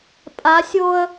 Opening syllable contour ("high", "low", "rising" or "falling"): rising